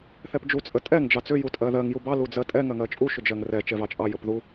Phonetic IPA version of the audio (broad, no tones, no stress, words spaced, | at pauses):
θɛpd͡ʒu t͡sʼətʼɛŋ d͡ʒɑt͡sʏ jutʼɜðɜŋ jubɑ lud͡zɜtʼɛ ŋɜŋɜt͡ʃʼu ʃʏd͡ʒɜŋrɛ t͡ʃɛvɑt͡ʃʼɑ jəpðu